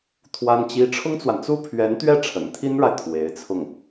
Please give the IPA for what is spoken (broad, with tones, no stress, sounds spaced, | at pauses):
t̪ʰ w a˥ n t͡ɕ i˥ ʈ͡ʂʰ ʊ˥ ŋ t͡s w a˨ n t͡s u˥ pʰ ɥ ɛ˧˥ n t̪ ɥ ɛ˥˩ ʈ͡ʂʰ ə̰˨˩ n t̪ʰ i˥ n ɻ a˨ ɪ̯ t̪ʰ w e˧˥ ɪ̯ t͡sʰ ʊ˥˩ ŋ